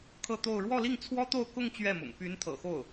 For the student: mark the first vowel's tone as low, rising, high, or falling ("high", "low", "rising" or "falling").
falling